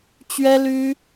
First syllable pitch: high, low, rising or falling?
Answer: high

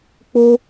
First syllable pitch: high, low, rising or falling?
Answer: high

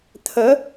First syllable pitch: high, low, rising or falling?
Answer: rising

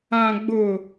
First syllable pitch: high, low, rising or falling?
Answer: low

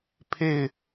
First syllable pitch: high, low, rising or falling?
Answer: falling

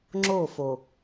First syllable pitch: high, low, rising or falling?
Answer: falling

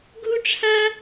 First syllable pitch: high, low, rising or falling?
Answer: high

